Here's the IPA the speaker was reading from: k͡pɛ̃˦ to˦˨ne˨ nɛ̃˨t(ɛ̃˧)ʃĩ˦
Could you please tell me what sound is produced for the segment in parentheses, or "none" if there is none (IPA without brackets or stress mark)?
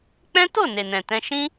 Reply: ɛ̃˧